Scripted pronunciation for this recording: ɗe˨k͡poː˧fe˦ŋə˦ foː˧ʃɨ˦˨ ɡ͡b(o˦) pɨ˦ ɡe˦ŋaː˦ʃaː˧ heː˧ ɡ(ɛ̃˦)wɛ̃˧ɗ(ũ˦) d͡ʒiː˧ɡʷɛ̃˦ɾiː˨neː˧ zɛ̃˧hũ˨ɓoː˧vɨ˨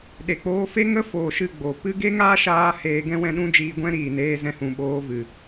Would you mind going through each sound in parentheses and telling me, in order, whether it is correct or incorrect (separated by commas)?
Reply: incorrect, correct, correct